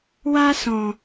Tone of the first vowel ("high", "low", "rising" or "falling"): high